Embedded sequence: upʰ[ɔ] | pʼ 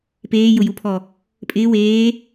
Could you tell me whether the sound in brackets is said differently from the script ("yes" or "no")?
no